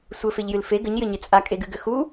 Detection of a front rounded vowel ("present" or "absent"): present